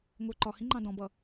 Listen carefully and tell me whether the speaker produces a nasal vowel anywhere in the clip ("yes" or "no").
yes